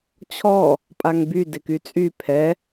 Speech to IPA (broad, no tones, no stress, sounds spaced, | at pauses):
t͡ɕʰ ɔ | pʼ a ŋ b y d ɪ k y t͡sʼ y pʰ ɛ